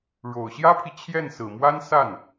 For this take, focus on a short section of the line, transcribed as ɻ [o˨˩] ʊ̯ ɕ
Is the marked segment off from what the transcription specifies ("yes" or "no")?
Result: no